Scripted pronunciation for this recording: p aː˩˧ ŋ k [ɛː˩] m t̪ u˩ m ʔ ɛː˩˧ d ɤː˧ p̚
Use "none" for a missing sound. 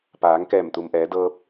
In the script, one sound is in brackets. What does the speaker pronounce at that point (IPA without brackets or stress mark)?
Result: ɛː˧˩